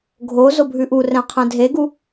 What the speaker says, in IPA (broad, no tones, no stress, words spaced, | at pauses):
ɡʱo zobʱʉʔurɛ̃ qʰɛ̃dʱeɡu